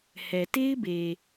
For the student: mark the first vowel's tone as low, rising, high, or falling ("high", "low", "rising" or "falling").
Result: low